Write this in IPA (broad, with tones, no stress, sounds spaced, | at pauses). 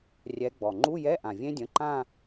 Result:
rʲ ɛ˨˦ ɡ͡b ɔ˩ ŋ͡ǃ u˧˥˧ j ɛ˧˥˧ ʔ ã˩ vʲ ẽ˦˥ dʲ ə̃˩˧˩ ǃ ã˥˧